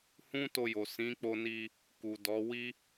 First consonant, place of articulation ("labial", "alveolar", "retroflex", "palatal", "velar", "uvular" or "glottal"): glottal